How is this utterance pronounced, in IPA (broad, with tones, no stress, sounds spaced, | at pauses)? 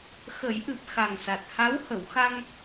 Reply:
x ə˨˩˦ j ʔ ɨ˨˩ p̚ x a˨˩ ŋ s a˨˩ t̚ h a˧˥ w h ə˨˩˨ w x a˧ ŋ